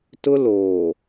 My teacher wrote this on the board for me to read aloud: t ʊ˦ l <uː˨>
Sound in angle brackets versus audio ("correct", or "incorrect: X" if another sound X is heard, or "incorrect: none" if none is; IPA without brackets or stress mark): incorrect: oː˨